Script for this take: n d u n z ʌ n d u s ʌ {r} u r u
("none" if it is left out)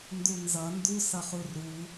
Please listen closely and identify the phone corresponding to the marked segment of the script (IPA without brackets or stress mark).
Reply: χ